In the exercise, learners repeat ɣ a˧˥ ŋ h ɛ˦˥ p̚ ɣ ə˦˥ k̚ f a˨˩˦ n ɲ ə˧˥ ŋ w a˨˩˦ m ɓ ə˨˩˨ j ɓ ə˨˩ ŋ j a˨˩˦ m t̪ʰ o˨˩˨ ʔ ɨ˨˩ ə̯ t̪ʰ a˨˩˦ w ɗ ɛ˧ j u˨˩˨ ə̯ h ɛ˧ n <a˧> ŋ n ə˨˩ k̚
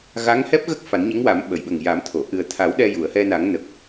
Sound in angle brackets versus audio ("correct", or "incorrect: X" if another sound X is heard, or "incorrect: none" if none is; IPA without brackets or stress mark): incorrect: a˨˩˦